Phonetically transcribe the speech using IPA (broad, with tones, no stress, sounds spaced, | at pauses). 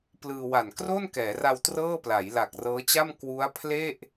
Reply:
p l ɯː˧ w a˨˩ n k r o˥˩ n k ɛː˩˦ r a˧ w t r ɤː˥˩ p l a˩˦ j l a˨˩ k̚ r ɤː˦˥ t͡ɕ a˥˩ m k w u˦˥ a̯ pʰ l e˥˩ ʔ